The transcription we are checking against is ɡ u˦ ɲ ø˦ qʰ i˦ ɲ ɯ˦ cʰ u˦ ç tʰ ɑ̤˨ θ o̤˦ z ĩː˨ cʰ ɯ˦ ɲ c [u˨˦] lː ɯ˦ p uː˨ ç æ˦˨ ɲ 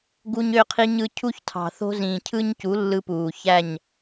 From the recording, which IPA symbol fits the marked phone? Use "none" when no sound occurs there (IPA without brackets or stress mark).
u˨˦